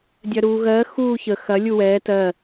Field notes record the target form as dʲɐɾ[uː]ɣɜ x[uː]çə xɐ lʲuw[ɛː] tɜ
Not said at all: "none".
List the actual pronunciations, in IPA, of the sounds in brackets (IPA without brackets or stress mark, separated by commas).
uː, uː, ɛː